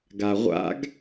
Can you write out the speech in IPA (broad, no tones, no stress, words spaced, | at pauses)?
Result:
ɡaʁʷa̰ɡ